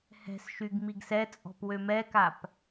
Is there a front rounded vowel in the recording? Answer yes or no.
yes